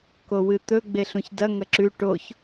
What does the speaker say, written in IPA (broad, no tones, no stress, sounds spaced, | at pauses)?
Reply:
k o w ɨ t̪ ɵ ɡ͡b e ɬ ũ ç d ɐ ŋ ɐ ǁ ʉ ʈ o ç